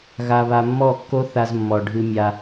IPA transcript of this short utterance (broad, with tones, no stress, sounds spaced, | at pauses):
ɣ a˧ β a˧ mː ɔ˦˨ kː o˦ θ a˧ z mː ɔ˨ ɖʱ ɨ˧ mʲ a˧